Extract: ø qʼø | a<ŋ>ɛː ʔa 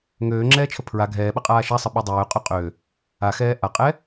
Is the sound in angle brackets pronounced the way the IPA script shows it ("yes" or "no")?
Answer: no